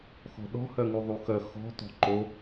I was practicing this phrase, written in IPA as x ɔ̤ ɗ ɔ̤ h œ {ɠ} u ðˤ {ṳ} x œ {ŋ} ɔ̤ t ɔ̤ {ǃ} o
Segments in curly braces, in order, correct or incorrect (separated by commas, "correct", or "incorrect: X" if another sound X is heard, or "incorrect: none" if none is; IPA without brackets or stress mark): incorrect: ŋ, incorrect: u, incorrect: x, correct